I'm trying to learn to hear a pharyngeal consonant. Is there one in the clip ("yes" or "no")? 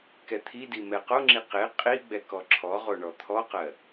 no